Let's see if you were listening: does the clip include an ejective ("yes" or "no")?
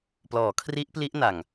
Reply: no